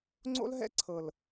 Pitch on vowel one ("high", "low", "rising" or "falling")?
high